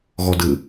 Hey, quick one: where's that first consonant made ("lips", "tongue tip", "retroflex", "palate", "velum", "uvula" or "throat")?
velum